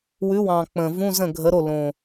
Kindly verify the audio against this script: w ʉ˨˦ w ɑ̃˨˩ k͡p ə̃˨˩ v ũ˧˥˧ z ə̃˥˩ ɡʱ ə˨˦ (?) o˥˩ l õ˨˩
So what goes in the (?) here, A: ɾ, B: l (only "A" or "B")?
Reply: A